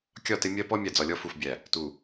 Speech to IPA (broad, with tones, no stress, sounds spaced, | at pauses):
kʲ ɒ˦˨ t ɪ˦ mʲ ɜ˦ p ɔ˦ mʲ æ˨ d͡z ɒ˨ lʲ ɔ˦ f u˨ f bʲ æ˨ | t u˨